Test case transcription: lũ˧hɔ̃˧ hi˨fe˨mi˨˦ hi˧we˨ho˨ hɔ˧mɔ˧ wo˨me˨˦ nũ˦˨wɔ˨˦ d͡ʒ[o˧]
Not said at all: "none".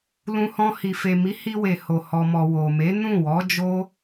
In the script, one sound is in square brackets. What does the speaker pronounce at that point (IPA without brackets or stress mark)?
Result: o˦